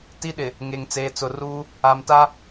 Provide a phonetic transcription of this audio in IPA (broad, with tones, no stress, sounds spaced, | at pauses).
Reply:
t i˦ ɗ ɪ˨ | ŋ e˨ ŋ t͡s eː˨ t͡s ʊ˨ r uː˦ | a˨ m t a˦